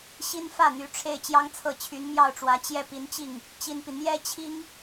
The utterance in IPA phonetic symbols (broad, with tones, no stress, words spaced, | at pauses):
ɕi˥nfä˥˩n̪y˧˥ʈ͡ʂʰe˥˩ɪ̯ t͡ɕjɑ˥ŋt͡sʰɤ˥˩ t͡ɕʰy˧˥nmjɑ˥˩ʊ̯ʈ͡ʂwä˧˥ t͡ɕjɛ˥˩pi˧˥nt͡ɕi˥˩ŋ | t͡ɕi˥npi˨ n̪jɛ˥ t͡ɕʰi˥ŋ